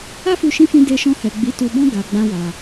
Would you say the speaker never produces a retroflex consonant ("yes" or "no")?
yes